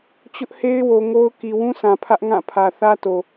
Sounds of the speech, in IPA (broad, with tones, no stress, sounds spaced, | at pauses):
t͡ɕ ʊ˦ ʔ h e˦ ɪ̯ w o˨ ŋ o˦ ʊ̯ k i˨ w ũ˦ sʰ ã˨ pʰ ä˦ ʔ ŋ ã˦˨ pʰ ä˨ θ ä˦ t o˨